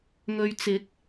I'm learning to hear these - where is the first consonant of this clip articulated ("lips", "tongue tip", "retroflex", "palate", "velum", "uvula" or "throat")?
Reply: velum